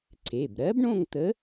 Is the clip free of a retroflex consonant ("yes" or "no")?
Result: no